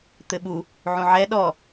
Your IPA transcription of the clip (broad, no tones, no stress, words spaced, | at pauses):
t̪ɘɓu | ʕũʕɛ ɗɔ